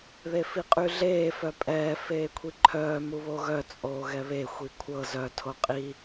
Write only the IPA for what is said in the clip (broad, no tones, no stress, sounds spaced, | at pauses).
ð e f i qʼ y ɮ eː f œ pʼ ɛː f eː kʷʰ i ǃʰ œː m u β o ɣ œ t͡sʼ oː ɣ ɛ β e xʷ i kʷʰ ɤ z œ tʰ o qʼ i